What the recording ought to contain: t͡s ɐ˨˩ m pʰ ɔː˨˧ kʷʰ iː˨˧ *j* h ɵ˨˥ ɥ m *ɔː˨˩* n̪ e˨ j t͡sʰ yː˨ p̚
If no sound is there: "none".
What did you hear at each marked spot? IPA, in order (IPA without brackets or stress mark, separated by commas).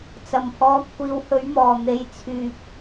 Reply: w, ɔː˨˩